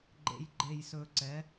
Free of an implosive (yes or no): yes